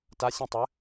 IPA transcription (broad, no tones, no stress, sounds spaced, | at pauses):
t a sʲ ĩ tˤ ɘ